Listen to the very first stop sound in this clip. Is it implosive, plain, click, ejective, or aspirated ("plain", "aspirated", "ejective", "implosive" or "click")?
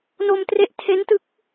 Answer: plain